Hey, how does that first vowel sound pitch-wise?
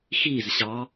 falling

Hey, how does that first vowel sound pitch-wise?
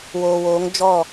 low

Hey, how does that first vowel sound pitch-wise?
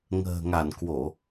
low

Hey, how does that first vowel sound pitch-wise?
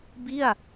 falling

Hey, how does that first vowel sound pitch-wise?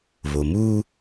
low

